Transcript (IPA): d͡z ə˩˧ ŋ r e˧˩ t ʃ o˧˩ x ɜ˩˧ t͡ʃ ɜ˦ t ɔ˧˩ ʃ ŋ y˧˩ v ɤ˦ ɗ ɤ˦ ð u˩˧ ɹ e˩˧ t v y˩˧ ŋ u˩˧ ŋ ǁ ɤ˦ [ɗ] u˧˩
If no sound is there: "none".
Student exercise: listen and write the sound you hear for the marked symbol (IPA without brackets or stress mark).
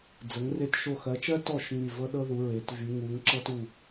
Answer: t